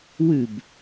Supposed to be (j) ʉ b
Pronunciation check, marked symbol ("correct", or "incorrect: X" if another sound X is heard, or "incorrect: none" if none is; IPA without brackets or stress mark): incorrect: w